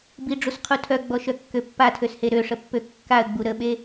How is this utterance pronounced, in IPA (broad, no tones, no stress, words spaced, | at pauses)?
biɖ͡ʐusqʰu tʰœɡ͡bɔʃœkːø pːatʰøshe ɾøʂəpːø kːaə̯ɡ͡bu ɾəɓe